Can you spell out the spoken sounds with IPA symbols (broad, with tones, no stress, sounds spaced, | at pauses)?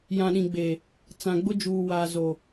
j ã˨ ɗ ĩ˨ ɡ͡b e˨ | t͡s ã˨ ɡ͡b ʊ˦ d͡ʒ uː˨ w a˨ z o˨